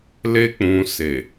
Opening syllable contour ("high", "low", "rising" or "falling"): high